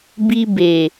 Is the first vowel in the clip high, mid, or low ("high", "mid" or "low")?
high